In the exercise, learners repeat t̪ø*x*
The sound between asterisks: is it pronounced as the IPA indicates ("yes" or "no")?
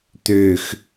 yes